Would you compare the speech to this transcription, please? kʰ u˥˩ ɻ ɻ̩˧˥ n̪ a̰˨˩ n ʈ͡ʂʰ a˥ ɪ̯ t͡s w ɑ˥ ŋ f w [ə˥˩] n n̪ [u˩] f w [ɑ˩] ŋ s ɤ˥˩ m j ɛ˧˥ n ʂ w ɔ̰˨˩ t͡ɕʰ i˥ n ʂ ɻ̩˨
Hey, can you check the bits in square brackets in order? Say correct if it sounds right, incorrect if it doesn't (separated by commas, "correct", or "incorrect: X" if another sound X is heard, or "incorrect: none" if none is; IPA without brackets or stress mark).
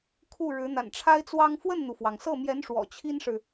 correct, correct, correct